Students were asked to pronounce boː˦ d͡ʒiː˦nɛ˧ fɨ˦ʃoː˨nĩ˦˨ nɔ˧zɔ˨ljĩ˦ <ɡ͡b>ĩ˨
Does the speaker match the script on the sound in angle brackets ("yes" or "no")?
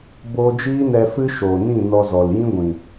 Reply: no